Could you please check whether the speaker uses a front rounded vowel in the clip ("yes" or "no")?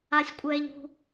no